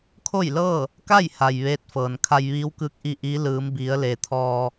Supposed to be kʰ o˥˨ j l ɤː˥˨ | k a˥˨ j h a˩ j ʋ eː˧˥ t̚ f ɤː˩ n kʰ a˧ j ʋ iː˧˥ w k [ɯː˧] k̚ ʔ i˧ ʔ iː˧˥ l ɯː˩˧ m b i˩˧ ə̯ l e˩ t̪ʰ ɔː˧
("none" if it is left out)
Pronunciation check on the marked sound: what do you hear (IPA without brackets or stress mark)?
ɯː˧˥